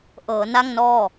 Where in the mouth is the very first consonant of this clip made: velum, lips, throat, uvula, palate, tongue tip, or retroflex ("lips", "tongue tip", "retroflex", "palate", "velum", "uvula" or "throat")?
throat